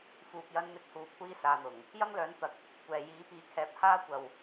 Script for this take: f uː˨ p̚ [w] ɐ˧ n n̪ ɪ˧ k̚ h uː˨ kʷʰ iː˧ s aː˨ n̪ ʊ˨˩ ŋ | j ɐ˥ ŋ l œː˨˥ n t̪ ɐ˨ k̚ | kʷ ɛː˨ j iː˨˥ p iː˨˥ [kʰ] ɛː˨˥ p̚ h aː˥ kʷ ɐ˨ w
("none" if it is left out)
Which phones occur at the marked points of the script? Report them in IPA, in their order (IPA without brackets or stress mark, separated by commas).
j, kʰ